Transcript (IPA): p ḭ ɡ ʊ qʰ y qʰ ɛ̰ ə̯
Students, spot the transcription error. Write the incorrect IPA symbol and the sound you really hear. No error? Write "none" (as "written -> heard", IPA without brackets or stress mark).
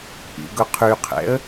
none